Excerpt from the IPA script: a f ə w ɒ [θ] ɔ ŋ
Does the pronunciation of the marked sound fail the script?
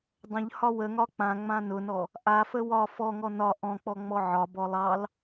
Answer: yes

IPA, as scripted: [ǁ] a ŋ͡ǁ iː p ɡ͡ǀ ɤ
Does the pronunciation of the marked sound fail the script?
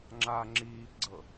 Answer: yes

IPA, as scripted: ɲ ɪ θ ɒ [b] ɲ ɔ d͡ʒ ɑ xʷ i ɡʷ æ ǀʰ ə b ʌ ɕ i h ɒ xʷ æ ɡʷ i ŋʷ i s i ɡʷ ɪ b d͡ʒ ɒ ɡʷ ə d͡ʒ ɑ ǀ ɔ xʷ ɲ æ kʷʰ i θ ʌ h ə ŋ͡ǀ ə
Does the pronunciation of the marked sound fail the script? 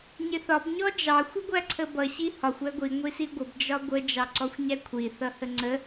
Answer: no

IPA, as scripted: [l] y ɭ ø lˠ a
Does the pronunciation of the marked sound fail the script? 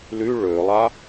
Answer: no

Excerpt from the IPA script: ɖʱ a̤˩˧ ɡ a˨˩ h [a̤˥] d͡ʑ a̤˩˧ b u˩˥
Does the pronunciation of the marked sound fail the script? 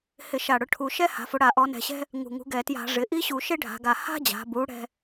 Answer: no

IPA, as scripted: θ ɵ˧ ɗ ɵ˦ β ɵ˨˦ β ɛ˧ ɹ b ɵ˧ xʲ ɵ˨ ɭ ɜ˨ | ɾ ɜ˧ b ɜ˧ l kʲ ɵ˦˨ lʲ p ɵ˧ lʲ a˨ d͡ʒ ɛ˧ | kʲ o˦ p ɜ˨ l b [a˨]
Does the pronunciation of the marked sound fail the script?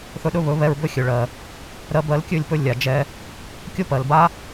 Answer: yes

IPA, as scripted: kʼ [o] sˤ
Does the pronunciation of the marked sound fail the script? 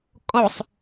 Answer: no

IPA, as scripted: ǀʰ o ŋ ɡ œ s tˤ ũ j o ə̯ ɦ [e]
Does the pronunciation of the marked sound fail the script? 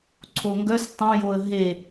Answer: no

